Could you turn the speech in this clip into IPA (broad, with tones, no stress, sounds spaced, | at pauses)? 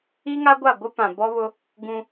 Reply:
i˦ ŋ a˦ ɡʷ a˦˨ ɡʷ ɪ˦ p ã˨ b ɔ˦ β ʊ˦ | ɡ ũ˦